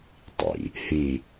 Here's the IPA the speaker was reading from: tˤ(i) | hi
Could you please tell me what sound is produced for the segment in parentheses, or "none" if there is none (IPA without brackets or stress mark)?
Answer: ḭ